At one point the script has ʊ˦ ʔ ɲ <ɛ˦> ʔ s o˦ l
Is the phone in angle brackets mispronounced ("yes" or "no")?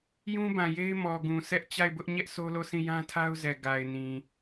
no